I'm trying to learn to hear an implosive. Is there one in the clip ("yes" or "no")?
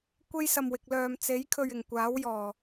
no